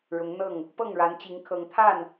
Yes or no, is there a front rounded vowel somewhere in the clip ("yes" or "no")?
no